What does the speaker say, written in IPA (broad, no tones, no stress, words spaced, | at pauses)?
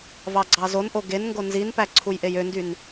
vɑɡ͡ǀɑzonʔo ɡenŋɡo nzinpæ ǀʰujʔejøndyn